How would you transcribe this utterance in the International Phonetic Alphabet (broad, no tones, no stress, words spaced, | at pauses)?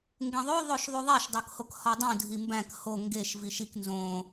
ŋɡẽðˤo ðˤoʃðˤuðˤæʃ dˤokhokhɒdˤũ dʱimbæ̃k ho ŋɡeʃ viʃik nzõ